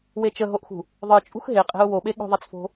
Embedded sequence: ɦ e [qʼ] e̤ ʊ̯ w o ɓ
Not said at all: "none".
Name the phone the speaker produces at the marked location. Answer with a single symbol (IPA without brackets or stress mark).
qʼ